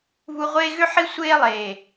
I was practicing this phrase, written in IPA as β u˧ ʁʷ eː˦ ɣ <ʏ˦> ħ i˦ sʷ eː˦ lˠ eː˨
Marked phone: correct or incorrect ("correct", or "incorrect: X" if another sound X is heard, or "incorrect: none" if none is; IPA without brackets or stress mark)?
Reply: correct